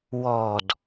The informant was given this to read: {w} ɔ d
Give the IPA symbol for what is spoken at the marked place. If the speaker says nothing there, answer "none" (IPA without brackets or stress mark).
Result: w